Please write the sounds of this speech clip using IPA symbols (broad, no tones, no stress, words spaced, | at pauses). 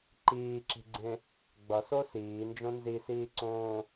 ǃiːǁi̤ɡ͡ǀẽ | ɡ͡bʌso siːnd͡ʒõ nzisiːǀõː